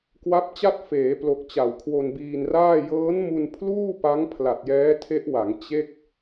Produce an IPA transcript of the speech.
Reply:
k w a˦˥ p̚ t͡ɕ a˥˩ t̚ f eː˩˦ p l o˨˩ k̚ t͡ɕ a˨˩ w kʰ w o˧ n b iː˧ n r aː˥˩ j ɤː˦˥ n m u˧ n pʰ l uː˥˩ p a˦˥ ŋ pʰ l a˨˩ t̚ j ɛː˦˥ tʰ e˦˥ ʔ w a˩˦ ŋ t͡ɕ e˥˩ k̚

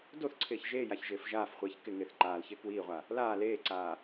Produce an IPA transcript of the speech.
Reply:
d o θ ǀʰ ɪː ç ʒ eː j a ç ʒ ɪː f ʒ aː f χʷ iː ç k ɪ ŋ ɪː θ ǃ aː l ç ɪː k w iː ʁʷ a | l aː l eː ǀ aː

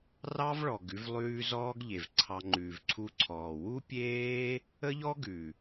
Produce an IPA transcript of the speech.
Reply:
r ɑ˦ v ɭ ɔ˨ ɡ ʉ˧ v lˠ ʉː˧ z ɔː˦ ɡ ʎ e˨ v ǀʰ ɑ˧ ŋ͡ǃ ʉː˨ v ǀʰ u˧ ǀʰ ɔː˨ w u˦ pʲ eː˦ | ə˦ ʎ ɔ˦ ɡ ʉ˨

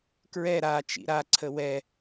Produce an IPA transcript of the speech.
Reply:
k ɹ ɛ ɾ a t͡ʃ ḭ ɾ a ǀʰ ə w ɛ

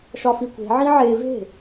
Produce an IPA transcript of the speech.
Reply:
ʃ ɒ f i kʷ e̤ ʕ ĩ ʕ e v e̤

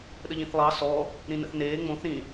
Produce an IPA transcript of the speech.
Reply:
ɗ ə ʎ ĩ θ lˠ ɑ s ɔː | ɾ ĩ n ə̰ θ n eː ŋ͡m õ θ ɾ ĩ

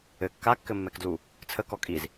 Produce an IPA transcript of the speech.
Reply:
ɘ kː a kː ɘ mː ɛ k d l u | t͡sʰ ə k ɔ kʼ i z

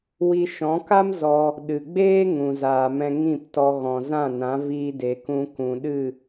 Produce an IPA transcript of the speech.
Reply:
w i˧ ʃ ɔ̃˨˦ k a˦ m z ɔ˧ | ɗ ɨ˨ ɡ͡b eː˦ ŋ ũ˨ z aː˨ m ɛ̃˧ ŋ ĩ˦˨ p t ɔ˧ ɣ ɔ̃˨ z ã˦˨ n ã˨˦ v iː˧ d e˨ k ũ˧ k ũ˨ ɗ ɨ˦˨

